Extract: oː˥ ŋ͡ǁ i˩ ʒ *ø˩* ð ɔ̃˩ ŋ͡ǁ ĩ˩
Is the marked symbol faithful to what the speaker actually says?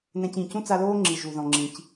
no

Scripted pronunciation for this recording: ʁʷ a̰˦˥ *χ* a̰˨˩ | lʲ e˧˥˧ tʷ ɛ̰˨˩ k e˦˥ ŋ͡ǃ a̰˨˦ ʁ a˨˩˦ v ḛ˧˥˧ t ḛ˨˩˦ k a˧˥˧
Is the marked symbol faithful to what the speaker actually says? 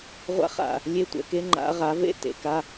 yes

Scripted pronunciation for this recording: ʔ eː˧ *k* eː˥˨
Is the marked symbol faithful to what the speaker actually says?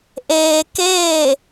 yes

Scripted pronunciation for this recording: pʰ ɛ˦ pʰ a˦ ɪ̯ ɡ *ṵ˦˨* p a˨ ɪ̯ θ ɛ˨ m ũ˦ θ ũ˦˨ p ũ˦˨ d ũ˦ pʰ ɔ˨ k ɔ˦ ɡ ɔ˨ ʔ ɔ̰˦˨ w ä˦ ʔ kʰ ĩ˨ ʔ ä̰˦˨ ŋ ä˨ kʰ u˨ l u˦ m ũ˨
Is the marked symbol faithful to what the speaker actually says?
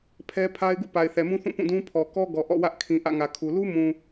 yes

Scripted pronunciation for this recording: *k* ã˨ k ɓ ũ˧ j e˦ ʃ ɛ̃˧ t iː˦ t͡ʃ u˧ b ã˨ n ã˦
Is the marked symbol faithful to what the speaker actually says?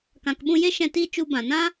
yes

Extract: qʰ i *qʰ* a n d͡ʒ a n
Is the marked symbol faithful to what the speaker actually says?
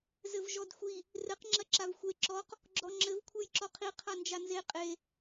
yes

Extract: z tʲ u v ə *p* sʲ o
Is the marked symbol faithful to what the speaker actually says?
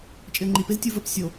yes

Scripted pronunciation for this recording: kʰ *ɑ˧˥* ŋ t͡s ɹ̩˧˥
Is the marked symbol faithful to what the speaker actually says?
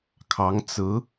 yes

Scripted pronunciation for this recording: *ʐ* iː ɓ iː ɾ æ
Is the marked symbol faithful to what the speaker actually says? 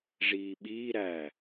yes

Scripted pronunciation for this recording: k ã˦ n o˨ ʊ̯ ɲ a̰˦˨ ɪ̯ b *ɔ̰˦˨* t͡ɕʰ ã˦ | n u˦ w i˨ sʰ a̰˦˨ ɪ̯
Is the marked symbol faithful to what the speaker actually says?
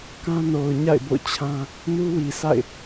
no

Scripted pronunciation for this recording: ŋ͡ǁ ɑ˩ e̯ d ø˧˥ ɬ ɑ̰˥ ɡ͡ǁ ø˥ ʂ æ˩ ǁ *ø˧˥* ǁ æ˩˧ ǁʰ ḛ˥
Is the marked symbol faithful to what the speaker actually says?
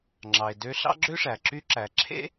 no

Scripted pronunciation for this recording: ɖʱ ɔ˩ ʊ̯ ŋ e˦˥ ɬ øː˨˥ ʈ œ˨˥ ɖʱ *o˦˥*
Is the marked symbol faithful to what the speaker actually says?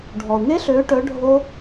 yes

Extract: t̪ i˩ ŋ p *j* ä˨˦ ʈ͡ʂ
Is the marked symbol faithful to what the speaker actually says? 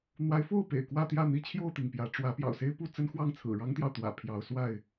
yes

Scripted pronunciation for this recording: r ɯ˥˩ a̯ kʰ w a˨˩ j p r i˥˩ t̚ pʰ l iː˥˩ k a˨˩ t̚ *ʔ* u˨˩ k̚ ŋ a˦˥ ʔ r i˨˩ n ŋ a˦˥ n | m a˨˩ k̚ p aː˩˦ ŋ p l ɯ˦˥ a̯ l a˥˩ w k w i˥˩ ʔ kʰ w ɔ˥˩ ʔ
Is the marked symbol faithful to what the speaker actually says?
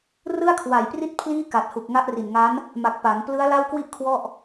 no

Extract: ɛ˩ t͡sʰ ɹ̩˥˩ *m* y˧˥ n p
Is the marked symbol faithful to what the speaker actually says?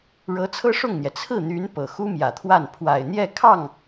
no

